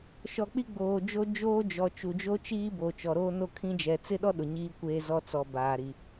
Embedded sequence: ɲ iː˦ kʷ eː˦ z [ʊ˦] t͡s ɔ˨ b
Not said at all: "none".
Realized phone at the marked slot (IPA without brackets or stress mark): ɔ˦